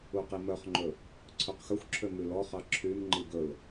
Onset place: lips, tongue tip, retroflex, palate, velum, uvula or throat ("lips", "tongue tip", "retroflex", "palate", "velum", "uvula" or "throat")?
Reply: uvula